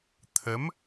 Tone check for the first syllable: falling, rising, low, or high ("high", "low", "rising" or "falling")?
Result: rising